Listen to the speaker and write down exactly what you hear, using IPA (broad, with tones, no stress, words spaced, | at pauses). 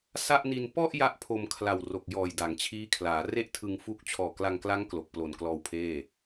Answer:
sa˥˩ʔni˧n pɔ˥˩ʔ ja˥˩ʔpʰo˧mkʰla˨˩w ro˨˩k̚jɔː˨˩j da˩˦ŋt͡ɕʰiː˦˥kʰlaː˩˦re˥˩ʔ tʰɯ˧ŋfu˦˥k̚ t͡ɕʰɔː˨˩kla˧ŋkla˦˥ŋ klo˨˩k̚plo˨˩nklɔː˧wpʰeː˥˩